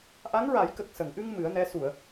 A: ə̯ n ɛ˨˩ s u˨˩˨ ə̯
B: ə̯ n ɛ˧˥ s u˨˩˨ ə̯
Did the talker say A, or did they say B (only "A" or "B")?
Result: B